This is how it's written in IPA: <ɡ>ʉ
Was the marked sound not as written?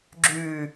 yes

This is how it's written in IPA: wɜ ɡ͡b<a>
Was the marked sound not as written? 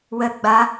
no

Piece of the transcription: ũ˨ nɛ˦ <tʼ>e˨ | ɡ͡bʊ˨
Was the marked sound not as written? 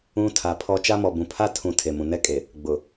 yes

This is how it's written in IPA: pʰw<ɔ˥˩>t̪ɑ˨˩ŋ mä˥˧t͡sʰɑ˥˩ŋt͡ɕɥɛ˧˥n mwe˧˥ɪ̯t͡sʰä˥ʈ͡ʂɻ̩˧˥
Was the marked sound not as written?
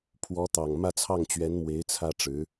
yes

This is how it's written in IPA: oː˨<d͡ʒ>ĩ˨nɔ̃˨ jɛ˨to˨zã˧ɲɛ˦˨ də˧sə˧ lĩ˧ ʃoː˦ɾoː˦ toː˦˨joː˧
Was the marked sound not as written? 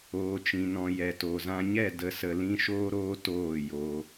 yes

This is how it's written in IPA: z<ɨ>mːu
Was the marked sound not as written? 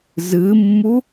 no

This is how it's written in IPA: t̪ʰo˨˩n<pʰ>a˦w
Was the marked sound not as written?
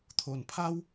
no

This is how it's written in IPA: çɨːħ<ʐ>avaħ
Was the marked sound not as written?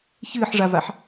no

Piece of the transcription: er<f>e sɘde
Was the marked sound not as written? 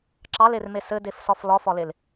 yes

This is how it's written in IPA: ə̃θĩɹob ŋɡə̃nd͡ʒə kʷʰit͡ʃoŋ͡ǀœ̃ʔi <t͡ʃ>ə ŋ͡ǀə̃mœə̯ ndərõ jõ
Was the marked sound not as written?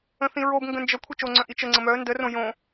no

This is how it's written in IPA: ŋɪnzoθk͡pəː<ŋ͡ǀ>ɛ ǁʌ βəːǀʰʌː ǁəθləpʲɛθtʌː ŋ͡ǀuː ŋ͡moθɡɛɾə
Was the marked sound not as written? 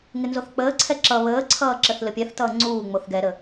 yes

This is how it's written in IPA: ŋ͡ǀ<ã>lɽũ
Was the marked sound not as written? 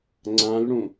no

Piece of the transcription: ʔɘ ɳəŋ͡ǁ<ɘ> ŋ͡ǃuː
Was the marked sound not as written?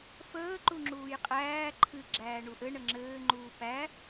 yes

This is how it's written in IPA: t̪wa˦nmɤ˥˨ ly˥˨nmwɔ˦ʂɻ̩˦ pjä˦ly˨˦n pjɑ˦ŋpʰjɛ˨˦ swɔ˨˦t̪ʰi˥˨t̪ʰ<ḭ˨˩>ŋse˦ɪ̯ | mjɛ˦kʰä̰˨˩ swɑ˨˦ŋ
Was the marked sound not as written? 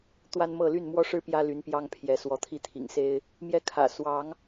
no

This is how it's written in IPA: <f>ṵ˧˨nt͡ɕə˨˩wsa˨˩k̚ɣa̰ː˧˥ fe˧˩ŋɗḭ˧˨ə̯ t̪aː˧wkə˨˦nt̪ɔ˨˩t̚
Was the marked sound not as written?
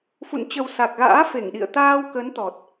no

